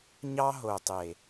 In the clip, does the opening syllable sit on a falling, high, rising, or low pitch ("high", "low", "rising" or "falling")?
high